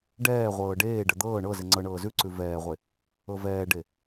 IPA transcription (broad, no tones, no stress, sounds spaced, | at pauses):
ɖ ɛː ʁʷ ɤː ɖ eː ɖ ə d̪ ɤː ɳ ɤ z e ŋ͡ǀ ɤ ɳ ɤː z ʉ ǀ ʉ v ɛː ʁʷ e | ɤ v ɛː ɖ e